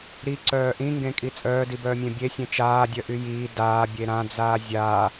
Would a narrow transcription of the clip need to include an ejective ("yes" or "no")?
yes